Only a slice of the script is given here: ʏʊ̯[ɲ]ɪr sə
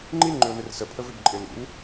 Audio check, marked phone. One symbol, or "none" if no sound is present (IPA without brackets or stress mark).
n